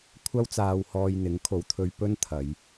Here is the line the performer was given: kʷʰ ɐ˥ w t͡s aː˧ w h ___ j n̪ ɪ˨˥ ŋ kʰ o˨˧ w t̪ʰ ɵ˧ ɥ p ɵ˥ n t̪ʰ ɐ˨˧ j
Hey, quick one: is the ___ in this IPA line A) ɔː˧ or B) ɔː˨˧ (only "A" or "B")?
A